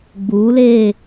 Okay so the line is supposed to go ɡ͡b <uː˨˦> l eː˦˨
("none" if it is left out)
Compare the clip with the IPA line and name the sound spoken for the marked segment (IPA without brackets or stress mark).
uː˨˦